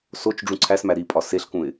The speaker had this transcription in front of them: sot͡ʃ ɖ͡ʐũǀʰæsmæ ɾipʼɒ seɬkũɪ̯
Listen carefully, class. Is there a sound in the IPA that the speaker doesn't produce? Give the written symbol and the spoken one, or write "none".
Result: none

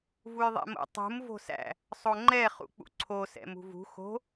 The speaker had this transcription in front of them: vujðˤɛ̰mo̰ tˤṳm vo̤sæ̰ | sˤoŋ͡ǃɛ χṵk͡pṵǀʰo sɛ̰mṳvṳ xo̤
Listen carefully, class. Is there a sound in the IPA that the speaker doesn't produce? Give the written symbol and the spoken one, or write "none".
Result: none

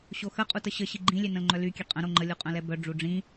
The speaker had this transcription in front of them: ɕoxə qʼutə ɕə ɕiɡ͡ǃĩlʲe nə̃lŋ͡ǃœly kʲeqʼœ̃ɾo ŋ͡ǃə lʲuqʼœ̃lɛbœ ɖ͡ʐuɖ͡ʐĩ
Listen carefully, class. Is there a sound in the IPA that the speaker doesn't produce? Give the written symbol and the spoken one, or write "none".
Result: none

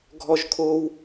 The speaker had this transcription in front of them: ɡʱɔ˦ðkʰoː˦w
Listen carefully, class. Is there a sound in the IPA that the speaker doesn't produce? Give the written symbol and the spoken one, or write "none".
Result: ð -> ʒ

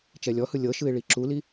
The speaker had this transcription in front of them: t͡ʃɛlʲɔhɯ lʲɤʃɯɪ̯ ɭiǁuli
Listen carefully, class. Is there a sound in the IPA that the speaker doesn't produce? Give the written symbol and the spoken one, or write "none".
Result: none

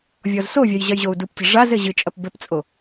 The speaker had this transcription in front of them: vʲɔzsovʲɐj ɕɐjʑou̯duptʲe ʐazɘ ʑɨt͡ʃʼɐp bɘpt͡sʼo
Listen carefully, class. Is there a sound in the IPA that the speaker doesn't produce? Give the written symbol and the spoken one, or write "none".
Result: ɕ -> ʑ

